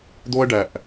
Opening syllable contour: high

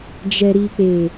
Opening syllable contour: low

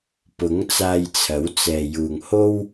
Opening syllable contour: rising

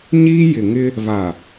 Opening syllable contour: high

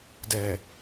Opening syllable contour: low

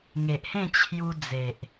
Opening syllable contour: low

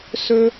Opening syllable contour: high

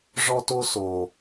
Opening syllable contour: high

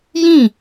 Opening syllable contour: falling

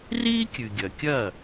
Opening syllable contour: high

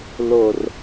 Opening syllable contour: low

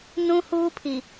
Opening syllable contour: high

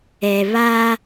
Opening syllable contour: low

